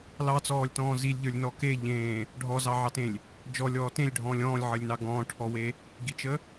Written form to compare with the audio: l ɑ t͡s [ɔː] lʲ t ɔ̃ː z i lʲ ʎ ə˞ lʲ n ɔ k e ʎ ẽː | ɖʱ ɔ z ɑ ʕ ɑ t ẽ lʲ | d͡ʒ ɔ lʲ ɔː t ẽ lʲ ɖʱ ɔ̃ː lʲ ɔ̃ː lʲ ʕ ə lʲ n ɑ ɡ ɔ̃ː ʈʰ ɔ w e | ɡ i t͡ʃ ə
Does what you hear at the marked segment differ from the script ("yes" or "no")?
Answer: no